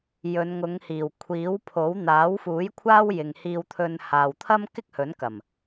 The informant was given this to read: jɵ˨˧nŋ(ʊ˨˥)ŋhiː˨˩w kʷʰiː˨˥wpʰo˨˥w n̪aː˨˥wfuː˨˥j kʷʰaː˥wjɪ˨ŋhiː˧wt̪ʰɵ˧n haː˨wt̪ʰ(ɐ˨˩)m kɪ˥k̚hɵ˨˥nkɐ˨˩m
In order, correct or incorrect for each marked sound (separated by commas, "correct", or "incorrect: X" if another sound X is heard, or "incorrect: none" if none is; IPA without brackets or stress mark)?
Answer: incorrect: ʊ˨˧, incorrect: ɐ˥